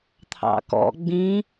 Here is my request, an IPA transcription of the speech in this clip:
t̪ʰ ɑ̰ k ɔ̰ ɡ͡b ĩ

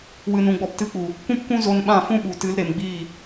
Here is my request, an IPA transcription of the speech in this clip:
w ɨ˨ n ũ˨ ɡ͡b ɔ˨ p t ɨ˨˦ k͡p u˨ | kʷ ũ˦ p kʷ ũ˦ z o˧ n ɓ ã˦˨ f ũ˦ ɓ u˨ t ɨ˨˦ l ɾ e˨ m ɡ͡b iː˦˨

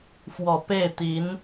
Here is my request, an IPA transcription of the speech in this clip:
f w ɔ˨˩ p e˥˩ ɪ̯ t̪ i˧˥ n

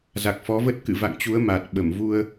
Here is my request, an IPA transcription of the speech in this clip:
z a˨˩ k̚ f ɔ˨˦ v ə˦˥ t̚ k ɨ̰˧˨ v a̰˧˨ ŋ t͡ɕ u˨˦ ə̯ m a˨˩ t̚ ɓ ə˧˩ m v u˧ ə̯

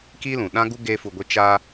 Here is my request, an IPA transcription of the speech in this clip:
k i˦ l ũ˨ ɗ ã˦ ɡ u˦ ɡ eː˦ f u˧ ɡʷ e˦ t͡ʃ aː˧

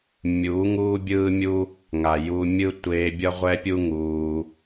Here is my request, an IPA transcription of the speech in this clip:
mʲ uː˨˦ ŋ uː˦ bʲ ɯː˦ mʲ u˦ | ŋ a˨ j u˧ mʲ ɯ˦ tʷ eː˧ bʲ ʌ˦ ʁʷ ɛ˦ pʲ u˦ ŋ uː˧

